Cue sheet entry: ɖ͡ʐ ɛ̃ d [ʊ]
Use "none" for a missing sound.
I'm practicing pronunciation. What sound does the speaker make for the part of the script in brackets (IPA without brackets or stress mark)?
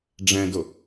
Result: ʊ